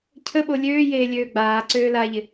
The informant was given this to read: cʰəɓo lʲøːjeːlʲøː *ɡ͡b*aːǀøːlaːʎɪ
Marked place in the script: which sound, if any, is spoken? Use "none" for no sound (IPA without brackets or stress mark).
ɡ͡b